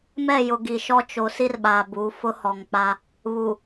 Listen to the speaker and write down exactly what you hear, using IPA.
m ɛ˦˨ j ʊ˨ ɡ i˨ ʃ ɔ˦ t͡ʃ o˨ s i˦ r ɓ aː˨ b u˨˦ f ʊ˦ h ɔ˨ ŋ k͡p a˦ | β u˨

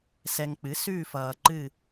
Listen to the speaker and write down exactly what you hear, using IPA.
s ɛ˨ ŋ k͡p ɨ˩˥ s ʉː˦˨ f ʌː˨ ǃ ɨ˦˨

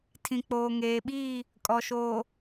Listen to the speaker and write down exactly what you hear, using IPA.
tʰ ĩ˨ k͡p oː˨ ŋ eː˨ ɓ iː˦˨ | kʼ ɔ˨ ʃ oː˨

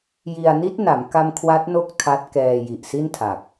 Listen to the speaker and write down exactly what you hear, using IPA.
j i˧ a̯ n i˦˥ t̚ n a˩˦ m k a˧ m kʰ w a˦˥ t̚ n o˥˩ k̚ tʰ a˦˥ t̚ k ɛː˧ j i˨˩ ʔ s i˥˩ n tʰ a˨˩ k̚

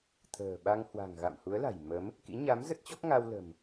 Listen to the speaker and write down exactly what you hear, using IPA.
t̪ʰ ə̤ː˨˩ ɓ a˧ ŋ h w a̤˨˩ ŋ ɣ a̰˧˨ m h u˨˦ ə̯ l a̤˨˩ j m ə˨˦ m | k ḭ˧˥ ɲ a˨˦ m z ə˦˥ t̚ t͡ɕ ɔ˦˥ k̚ ŋ a˧ w l ə̤˨˩ m

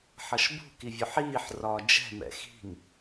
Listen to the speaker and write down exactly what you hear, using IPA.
ħ ʌ ʃ b ṳ k i vʲ ʊ ħ iː ħ r ɒː d͡ʒ ɛ̤ m ɛ̰ x i̤ ŋ

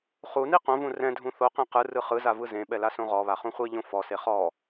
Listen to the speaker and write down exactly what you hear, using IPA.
χ u n i q õ v ũ r ɛ̃ dʱ ũ θ o q ẽ q ɯ r ɯ χ ɯ z a v ɯ z ẽ ɓ ɛ l a s õ ʁ ɔ β a χ ũ χʷ i ʎ õ f ɔ s e χ ɔ

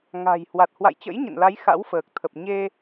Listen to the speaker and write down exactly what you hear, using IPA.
ŋ a̤˨˩ j h w a˨˩ t̚ h w a̰˧˨ j t͡ɕ ə̰˧˥ j ɲ ə̰˧˨ n l a˨˦ j x a̰˧˥ w f əː˨˩ k̚ t̪ʰ ə˨˩ p̚ ɲ e˧

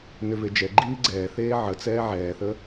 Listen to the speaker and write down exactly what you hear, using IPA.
n ʏ v e d͡ʒ ɛ ɡ͡ǃ iː ɡ͡ǀ ɛː θ eː ʕ ə t͡s ɛː ʕ ɛː θ ə

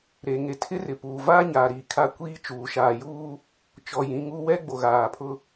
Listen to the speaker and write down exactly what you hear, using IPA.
ɾ e˨ ŋ e˨ tʰ ɪ˦ r ɪ˨ p uː˨ v aː˦ ɲ aː˨ ɾ iː˨ kʰ a˦ kʷ iː˦ t͡ʃ uː˨ ʃ aː˨ j uː˦ | t͡ʃ ɔ˨ j ĩ˨˦ ŋ uː˦ w ɛ˦ ɡ͡b o˨ ɣ aː˨ pʰ ʊ˦

